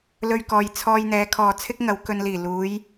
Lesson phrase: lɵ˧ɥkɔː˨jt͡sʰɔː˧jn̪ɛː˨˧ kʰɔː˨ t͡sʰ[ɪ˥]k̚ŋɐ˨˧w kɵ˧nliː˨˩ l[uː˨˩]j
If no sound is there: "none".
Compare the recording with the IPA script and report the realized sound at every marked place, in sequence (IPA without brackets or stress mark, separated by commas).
ɪ˥, uː˨˧